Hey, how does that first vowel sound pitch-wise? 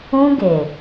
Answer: high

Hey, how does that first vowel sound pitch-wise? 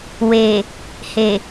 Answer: low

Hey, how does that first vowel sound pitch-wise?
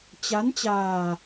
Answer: rising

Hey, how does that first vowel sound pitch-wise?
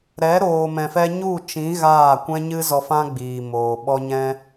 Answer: rising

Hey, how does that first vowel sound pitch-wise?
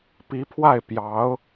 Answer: rising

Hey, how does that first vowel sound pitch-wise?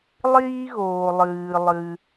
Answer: high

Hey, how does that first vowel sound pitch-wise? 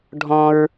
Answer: high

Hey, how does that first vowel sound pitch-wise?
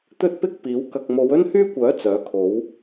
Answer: high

